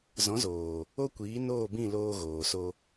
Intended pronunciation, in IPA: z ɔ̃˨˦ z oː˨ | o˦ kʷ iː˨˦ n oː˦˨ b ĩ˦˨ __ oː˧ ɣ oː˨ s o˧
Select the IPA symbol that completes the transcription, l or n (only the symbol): l